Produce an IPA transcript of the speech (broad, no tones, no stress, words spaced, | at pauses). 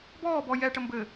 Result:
bɔːbɔ jɛʈə mbɘ